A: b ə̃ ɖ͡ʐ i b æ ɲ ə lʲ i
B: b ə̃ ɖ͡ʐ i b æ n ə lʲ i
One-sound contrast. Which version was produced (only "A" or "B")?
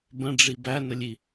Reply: B